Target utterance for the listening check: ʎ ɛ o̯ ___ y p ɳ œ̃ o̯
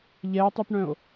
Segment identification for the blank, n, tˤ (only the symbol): tˤ